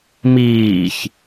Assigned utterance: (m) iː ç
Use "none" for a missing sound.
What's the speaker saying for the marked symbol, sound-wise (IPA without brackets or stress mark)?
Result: m